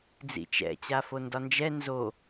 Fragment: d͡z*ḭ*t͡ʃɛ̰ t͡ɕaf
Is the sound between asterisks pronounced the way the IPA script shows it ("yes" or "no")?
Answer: yes